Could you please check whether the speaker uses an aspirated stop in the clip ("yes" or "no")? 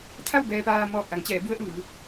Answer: yes